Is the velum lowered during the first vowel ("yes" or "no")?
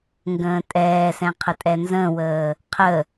yes